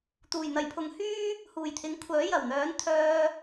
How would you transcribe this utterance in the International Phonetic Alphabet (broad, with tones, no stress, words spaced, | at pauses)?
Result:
t̪uː˨˩jn̪ɐ˨˩jpʰʊ˨˧ŋhyː˥ | huː˨˩jt̪ʰɪ˨˥ŋ kʷʰœː˨˥jɐ˨˩w n̪œː˨˥nt̪ʰœː˧